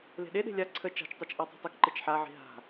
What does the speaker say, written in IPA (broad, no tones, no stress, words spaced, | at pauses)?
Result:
le̤ɗeɗe̤ lʲa ǀʰə t͡ʃa̤t͡ʃtˤet͡ʃ ʔɔtˤi̤tˤɪk ǃɪt͡ʃħaʕi̤ ɦa̤